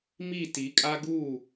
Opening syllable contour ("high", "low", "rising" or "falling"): falling